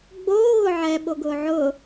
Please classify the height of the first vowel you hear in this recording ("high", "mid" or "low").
mid